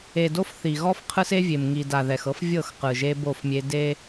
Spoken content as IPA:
e˨ d o˦ f θ i˨ ɣ ɔ˦ f qʰ ɯ˦ s e˦ vʲ e˨ m ŋ i˨ d a˨ ð ɛ˨ x ɤ˦ f vʲ ɤ˦˨ x q ɯ˨ ʒ e˦ b o˦˨ f mʲ e˦ d e˦

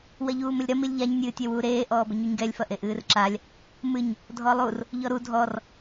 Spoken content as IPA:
w ɐ ʎ uː m ɘ lʲ ɾ ɐ m i lʲ ʎ a ɲ nʲ ɨː tʲ ɛ w uː ɾ eː ʔ ɔː b ɘ ɲ u ɲ ɡ ɛ lʲ f ɐ ʔ e ʔ ɨː r ǁ a lʲ | m ɨ ɲ | dʱ ɔ lˠ u r | ʎ ɔ ɾ u dʱ ɔ r

